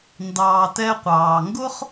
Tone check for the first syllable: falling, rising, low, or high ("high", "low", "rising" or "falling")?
low